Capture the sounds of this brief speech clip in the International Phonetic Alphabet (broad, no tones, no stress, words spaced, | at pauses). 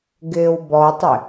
ɡɪːwbɔtˤɪ